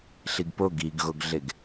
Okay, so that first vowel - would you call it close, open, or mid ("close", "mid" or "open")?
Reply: close